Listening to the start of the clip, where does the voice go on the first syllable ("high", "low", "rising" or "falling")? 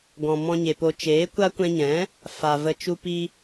low